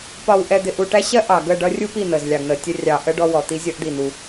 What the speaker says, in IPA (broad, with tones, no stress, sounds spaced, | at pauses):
p ɒ˨ w ʔ ɛ˨ d̪ ɪ˨ ʔ u˨ ʈ æ˦ ɕ ɜ˦ ʔ ɑ˨ ɡ ə˦˨ ɖ ʌ˦ rʲ u˦ p i˦˨ n̪ ə˨ z lʲ ɑ˨ ɡ n̪ ə˨ tʲ ə˦ rʲ ɑ˨ ʔ ə˦ ɖ ɔ˦ w ɔ˨ t̪ i˦ zʲ ʌ˦ ʔ d̪ i˦˨ n̪ u˦